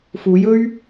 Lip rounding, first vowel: rounded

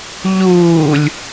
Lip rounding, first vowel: rounded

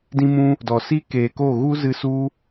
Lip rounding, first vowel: unrounded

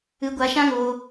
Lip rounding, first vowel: unrounded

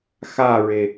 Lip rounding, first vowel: unrounded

